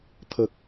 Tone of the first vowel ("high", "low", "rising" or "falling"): low